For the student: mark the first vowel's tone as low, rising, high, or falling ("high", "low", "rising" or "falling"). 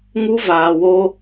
high